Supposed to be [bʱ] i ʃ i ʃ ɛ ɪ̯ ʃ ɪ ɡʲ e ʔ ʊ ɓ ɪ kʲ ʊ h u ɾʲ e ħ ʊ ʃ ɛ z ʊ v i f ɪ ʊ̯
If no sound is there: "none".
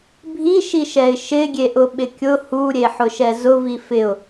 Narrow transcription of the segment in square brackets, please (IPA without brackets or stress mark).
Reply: bʱ